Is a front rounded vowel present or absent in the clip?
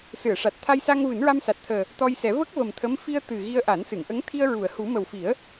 absent